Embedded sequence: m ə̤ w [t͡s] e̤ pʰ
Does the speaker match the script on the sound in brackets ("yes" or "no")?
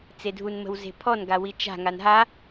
no